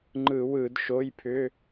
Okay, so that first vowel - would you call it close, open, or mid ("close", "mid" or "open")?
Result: close